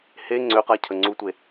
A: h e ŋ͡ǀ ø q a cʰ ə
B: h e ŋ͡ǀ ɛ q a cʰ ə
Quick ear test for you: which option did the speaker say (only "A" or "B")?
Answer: A